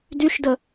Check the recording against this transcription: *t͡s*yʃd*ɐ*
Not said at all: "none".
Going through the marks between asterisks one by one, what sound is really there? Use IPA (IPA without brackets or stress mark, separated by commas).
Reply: d, ə